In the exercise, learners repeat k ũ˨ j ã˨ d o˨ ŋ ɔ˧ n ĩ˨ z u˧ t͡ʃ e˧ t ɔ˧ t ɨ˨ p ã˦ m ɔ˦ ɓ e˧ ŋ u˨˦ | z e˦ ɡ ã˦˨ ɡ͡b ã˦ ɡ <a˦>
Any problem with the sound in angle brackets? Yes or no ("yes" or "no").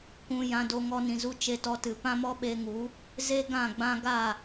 yes